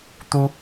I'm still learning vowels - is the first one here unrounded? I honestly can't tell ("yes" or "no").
no